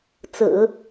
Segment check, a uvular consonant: absent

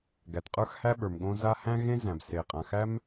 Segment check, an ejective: present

